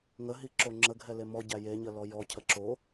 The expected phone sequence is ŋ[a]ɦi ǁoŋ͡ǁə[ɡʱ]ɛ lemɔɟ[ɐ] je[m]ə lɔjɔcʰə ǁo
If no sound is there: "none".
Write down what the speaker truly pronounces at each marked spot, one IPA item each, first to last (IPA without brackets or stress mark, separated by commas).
ə, ɡʱ, æ, ɲ